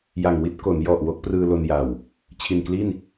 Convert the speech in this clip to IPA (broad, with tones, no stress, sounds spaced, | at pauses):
j a˨˩ ŋ w i˦˥ t̚ k o˩˦ n j ɔ˨˩ ʔ w o˦˥ k̚ p r ɯː˧ l o˧ n j a˨˩ w | t͡ɕʰ i˨˩ n k l i˥˩ n